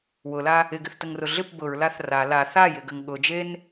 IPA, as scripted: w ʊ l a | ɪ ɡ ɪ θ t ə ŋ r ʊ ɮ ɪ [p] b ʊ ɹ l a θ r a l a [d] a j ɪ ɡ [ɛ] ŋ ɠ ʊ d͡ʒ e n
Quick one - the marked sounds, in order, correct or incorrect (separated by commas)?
correct, incorrect, incorrect